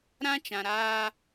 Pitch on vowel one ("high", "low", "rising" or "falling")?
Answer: high